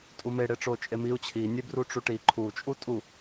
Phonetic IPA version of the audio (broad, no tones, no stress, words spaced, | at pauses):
tʼumeɽeʈ͡ʂo t͡ʃʼemiu̯ t͡ɕʰinʲebruʈ͡ʂu ʈi ǃʰut͡ʃʼu tʼu